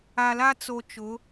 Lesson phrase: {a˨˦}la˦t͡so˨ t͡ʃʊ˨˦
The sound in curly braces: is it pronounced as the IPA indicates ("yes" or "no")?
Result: no